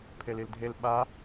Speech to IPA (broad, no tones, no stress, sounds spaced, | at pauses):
pʰ e l i l dʱ e l ɓ a